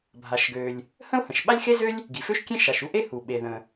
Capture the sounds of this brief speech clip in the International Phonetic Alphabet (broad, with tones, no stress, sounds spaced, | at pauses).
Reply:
bʱ a˩ ʃ ɡ ø˩ lʲ | h ə̃˥ ʊ̯ h ə̃˩ ʃ ɓ a˥ lʲ x e˥ z ø˥ lʲ | ɡ i˩ f ø˥ ʃ kʲ ẽ˥ ʃ a˩ ʃ u˥ ʔ e˥ h u˩ ɓ e˩ ð ə̃˩